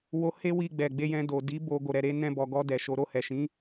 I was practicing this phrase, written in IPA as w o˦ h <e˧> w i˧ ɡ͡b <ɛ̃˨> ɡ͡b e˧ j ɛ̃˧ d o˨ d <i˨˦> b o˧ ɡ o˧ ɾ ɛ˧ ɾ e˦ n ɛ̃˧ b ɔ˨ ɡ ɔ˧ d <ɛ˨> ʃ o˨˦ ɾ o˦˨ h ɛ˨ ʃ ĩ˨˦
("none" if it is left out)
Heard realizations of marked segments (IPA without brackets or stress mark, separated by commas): e˦, ɛ˨, i˨˦, ɛ˨